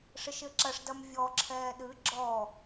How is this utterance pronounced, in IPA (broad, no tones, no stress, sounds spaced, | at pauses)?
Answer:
ʂ ɘ ʃ ɘ ǁ ɐ ʂ d ɐ m vʲ ɔ ǁʰ ɛː ɗ ɨ ɡ͡ǁ ɔ